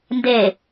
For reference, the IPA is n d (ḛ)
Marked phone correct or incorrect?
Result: incorrect